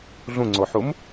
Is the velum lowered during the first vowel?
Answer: yes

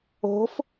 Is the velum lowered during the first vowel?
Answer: no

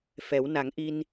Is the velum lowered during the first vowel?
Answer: no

